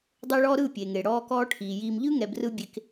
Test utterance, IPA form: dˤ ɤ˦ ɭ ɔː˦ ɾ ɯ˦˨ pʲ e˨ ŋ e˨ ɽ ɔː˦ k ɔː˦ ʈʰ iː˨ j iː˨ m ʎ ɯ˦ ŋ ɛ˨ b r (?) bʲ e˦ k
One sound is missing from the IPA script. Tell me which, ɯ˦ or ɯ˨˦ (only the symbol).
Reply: ɯ˦